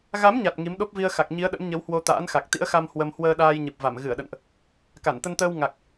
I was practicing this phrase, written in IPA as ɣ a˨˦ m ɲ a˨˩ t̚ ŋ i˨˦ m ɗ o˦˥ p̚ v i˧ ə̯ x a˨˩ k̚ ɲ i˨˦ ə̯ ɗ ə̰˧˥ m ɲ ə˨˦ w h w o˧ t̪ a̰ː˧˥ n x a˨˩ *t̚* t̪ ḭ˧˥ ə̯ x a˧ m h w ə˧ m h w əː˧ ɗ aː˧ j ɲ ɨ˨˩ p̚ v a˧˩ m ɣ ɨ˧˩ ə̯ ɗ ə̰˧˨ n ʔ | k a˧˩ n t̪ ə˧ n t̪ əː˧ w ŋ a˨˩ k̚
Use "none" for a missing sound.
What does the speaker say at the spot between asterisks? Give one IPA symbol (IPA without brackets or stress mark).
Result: k̚